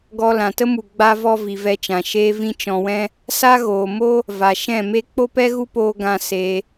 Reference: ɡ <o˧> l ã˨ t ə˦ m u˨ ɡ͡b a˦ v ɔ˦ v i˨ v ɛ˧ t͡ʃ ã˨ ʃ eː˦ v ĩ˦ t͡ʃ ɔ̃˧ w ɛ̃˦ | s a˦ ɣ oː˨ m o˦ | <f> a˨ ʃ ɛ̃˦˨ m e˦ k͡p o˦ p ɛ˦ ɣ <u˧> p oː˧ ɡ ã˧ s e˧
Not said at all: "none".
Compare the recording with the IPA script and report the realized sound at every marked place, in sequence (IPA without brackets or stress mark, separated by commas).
ɔ˧, v, u˦